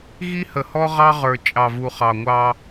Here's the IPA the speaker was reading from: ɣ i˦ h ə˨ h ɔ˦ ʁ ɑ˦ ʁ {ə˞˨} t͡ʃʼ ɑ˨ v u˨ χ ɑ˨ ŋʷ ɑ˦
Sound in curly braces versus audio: correct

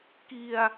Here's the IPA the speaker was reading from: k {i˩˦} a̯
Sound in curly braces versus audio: incorrect: i˧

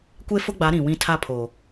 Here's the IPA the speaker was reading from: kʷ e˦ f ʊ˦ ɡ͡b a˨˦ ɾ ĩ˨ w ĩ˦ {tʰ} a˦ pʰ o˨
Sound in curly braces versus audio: correct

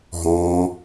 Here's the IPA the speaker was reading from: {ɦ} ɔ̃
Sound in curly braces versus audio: correct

